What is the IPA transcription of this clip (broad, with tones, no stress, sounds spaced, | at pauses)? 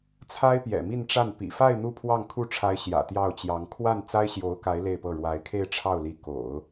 t͡sʰ a˥ ɪ̯ p j ɛ̰˨˩ m i˥˧ n ʈ͡ʂ a˥˩ n p ḭ˨˩ f a˥˧ ɪ̯ n̪ u˥˧ pʰ w ɑ˥˧ ŋ kʰ u˥˩ ʈ͡ʂʰ a˧˥ ɪ̯ ɕ j ä̰˨˩ t̪ j ɑ˥˩ ʊ̯ t͡ɕ j ɑ˧˥ ŋ kʰ w a˥˩ n t͡s a˥ ɪ̯ ɕ j o˧˥ ʊ̯ k a˧˥ ɪ̯ l e˥˧ ɪ̯ p ɤ˥˩ ɻ w a˧˥ ɪ̯ kʰ e˥˧ ɪ̯ ʈ͡ʂʰ ɑ˥˩ ʊ̯ l i˧˥ k o̰˨˩˦ ʊ̯